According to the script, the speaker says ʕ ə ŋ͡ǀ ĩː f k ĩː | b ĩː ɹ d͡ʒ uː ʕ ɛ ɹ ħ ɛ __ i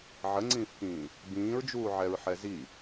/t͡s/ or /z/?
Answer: z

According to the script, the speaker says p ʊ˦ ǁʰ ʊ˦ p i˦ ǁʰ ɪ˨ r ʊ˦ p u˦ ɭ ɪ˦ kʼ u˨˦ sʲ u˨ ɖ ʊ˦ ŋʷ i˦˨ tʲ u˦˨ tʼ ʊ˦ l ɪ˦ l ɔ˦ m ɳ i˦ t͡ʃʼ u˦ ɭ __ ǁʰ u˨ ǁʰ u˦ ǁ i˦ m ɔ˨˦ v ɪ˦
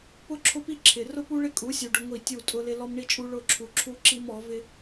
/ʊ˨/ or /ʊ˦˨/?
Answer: ʊ˦˨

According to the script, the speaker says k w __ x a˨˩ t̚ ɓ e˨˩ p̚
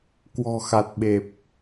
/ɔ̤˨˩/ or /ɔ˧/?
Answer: ɔ̤˨˩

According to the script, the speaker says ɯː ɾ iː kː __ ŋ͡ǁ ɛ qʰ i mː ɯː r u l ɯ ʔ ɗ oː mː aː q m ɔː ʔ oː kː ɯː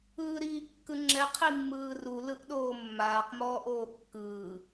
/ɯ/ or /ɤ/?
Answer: ɯ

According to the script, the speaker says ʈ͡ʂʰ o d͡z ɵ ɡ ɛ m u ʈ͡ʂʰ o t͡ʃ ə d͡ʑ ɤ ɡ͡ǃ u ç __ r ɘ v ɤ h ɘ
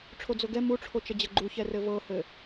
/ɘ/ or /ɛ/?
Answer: ɛ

